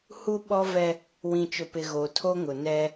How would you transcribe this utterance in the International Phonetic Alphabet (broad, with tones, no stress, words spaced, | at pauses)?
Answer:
hu˦ɓɔ˦vɛ˦ | wĩ˨t͡ʃʊ˨pɪ˨ ɣo˨tʰo˦ŋʊ˨ nɛ˦